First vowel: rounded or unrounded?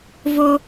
rounded